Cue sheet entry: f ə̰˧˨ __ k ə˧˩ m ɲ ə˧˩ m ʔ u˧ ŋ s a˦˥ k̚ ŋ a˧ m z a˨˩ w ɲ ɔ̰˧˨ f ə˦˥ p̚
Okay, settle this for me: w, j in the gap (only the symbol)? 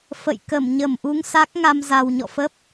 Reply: j